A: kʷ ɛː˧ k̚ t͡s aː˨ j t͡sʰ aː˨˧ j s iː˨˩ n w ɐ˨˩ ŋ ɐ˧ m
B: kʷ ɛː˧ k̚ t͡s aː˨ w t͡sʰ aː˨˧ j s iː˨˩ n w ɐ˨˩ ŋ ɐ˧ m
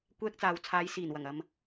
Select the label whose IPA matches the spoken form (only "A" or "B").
B